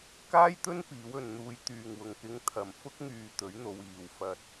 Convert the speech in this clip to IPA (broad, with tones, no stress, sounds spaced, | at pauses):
k aː˥ j t̪ ɵ˥ n p iː˨˥ w ɵ˨˧ n n̪ uː˧ j t̪ yː˨ ŋ w ʊ˨ ŋ k ɪ˧ ŋ t̪ʰ ɐ˨ m f ʊ˥ k̚ ŋ yː˧ t̪ ɵ˨˥ ɥ n̪ o˨˧ w iː˨ w f ɐ˧ t̚